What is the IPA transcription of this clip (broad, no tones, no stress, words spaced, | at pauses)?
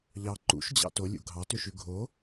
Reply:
ʎɑ ǃṵʃd͡ʑɑ̰ tolʲṵ ɡʱɑtøʃʉ ɡʱo